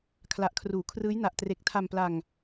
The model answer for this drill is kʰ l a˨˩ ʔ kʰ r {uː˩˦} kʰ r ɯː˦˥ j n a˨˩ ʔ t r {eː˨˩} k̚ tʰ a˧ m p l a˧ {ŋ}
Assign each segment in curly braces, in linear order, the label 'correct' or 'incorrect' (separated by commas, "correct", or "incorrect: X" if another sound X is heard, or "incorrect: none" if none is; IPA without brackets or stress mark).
correct, incorrect: e˨˩, correct